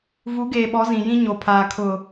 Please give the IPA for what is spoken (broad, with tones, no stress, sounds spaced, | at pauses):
v u˨˦ ɡ eː˨ ɓ ɔ˨˦ z ĩ˨ j ĩ˦ ɲ o˨ pʰ aː˨ kʰ ʊ˨